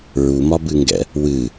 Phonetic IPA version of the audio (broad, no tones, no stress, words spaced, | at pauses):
ɹumɒbɨŋɡɛ̰ | wɨ